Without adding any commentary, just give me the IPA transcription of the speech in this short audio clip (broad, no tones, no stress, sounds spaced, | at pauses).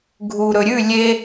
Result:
ɡʱ u ɾ ɵ ɾʲ ʉ lʲ e